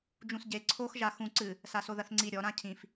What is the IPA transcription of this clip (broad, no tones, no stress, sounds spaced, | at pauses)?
d͡ʒ ũ s ɟ e ǀʰ o x ʒ a x ũ ǀ ɨ | s a s o ð ɐ θ ŋ͡ǀ i ɾʲ ɔ ɾ ã cʰ ĩ f